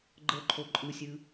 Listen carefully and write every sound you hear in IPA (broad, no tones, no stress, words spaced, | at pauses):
ɡ͡ǃɤǃʰo ǃʼɯsʲɯ